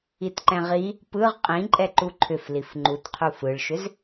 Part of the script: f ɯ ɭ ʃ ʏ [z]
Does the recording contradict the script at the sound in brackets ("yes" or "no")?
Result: no